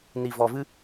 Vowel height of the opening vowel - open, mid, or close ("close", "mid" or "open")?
close